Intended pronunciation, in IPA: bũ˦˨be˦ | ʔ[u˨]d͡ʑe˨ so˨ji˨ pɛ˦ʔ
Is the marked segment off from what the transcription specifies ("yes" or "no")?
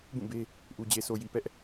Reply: no